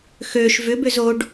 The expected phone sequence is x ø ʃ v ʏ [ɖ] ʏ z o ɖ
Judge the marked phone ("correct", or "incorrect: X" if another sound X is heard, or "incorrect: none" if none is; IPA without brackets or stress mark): incorrect: b